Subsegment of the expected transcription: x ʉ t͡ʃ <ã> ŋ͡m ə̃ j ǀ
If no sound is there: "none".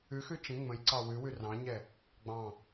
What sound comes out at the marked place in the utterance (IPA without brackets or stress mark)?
ə̃